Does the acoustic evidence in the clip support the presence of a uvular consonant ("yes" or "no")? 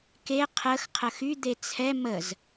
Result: yes